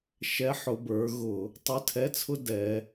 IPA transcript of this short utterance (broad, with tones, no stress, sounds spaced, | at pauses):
ʃ ɛ˧˥ ħ ʊ˩˧ b ə˞˩˧ ɣ ʊ˧˩˧ | tˤ ʊ˧˥˧ tʰ ɛ˧˥˧ t͡sʰ ʊ˥ d ɛ˩˧